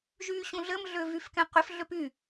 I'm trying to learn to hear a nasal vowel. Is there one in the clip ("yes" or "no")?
yes